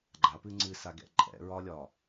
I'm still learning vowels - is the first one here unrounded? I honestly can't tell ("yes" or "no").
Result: yes